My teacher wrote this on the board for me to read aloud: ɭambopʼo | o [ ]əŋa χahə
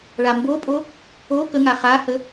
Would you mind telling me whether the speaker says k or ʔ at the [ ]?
k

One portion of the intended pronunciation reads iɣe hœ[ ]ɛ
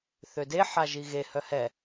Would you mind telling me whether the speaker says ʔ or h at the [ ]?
h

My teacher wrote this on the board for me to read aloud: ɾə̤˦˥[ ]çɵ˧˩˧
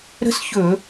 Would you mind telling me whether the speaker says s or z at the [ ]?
s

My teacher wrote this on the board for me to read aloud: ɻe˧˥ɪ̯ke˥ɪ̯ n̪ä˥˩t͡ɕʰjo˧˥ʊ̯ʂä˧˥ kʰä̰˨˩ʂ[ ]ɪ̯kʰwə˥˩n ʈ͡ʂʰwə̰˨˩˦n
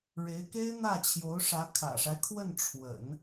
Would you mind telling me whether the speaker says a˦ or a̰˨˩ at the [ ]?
a˦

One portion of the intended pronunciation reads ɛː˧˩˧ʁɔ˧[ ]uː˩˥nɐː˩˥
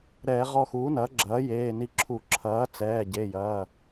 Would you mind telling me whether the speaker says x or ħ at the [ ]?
x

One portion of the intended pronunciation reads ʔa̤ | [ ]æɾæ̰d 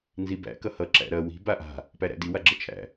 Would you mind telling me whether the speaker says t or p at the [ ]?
p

